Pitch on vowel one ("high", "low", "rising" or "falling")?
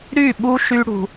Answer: falling